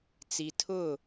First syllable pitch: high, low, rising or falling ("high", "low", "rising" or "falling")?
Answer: low